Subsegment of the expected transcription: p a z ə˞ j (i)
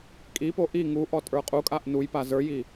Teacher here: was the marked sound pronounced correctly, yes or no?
yes